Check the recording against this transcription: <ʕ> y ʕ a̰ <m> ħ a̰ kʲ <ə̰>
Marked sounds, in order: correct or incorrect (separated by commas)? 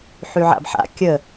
incorrect, incorrect, incorrect